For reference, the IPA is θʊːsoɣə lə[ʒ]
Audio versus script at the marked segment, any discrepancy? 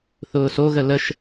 yes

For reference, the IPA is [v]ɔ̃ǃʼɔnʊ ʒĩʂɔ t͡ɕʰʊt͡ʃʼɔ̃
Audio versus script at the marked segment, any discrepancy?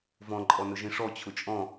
no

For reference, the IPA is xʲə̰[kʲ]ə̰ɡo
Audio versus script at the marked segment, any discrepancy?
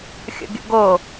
yes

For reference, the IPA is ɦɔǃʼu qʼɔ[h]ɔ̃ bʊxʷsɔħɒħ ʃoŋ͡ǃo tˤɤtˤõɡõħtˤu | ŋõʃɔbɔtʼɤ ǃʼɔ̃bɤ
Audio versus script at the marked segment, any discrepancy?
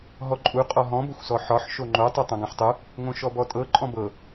yes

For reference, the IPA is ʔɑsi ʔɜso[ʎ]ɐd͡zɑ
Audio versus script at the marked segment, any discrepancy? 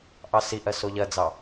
no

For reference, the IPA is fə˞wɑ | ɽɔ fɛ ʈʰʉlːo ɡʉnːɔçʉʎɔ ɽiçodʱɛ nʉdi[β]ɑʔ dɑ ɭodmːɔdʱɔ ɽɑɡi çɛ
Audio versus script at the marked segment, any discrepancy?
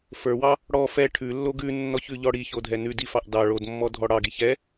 yes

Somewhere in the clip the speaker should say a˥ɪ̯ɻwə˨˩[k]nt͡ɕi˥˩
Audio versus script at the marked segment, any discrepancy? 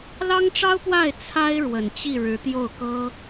yes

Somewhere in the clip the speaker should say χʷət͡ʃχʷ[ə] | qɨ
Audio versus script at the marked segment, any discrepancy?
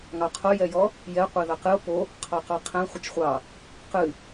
yes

